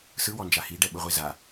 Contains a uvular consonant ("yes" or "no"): yes